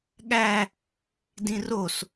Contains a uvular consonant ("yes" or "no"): no